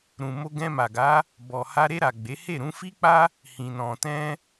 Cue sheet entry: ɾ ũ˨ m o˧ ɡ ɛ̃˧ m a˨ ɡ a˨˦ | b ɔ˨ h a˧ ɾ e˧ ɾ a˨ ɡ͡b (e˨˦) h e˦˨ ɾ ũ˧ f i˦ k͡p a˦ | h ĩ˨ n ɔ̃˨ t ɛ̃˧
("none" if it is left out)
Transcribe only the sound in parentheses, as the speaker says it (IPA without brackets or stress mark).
e˨˦